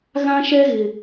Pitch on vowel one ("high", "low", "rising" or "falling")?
high